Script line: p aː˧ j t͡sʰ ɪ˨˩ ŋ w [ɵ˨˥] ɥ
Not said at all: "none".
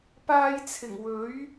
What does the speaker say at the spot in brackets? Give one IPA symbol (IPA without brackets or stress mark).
ɵ˨˥